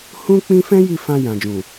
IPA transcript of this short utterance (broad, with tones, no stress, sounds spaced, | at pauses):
h ũ˦ k͡p ĩ˦ f ɛ̃˦ j i˦˨ f ã˧ j ã˨ d͡ʒ ũ˨